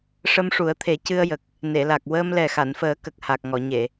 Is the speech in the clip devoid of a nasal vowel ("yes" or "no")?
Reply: yes